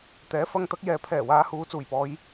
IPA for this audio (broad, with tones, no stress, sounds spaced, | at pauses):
t̪ ɛː˨˥ f ɐ˧ ŋ t̪ ɐ˨˥ k̚ j ɛː˨ pʰ ɛː˨˩ w aː˨˧ h uː˨˧ t͡s uː˨˩ j p ɔː˨˧ j